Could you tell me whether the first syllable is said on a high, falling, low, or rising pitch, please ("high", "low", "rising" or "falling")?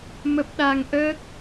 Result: low